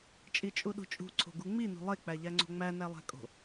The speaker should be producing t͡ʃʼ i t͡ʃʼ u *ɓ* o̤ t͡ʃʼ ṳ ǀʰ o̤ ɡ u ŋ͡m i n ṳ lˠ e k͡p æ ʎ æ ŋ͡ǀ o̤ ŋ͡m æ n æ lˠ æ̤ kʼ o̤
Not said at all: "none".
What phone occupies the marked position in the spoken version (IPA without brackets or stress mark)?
ɗ